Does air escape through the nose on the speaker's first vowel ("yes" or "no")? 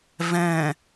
yes